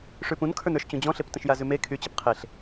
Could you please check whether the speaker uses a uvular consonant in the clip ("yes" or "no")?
yes